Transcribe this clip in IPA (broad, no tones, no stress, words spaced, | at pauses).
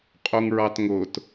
qʼuŋɹɑtŋʊt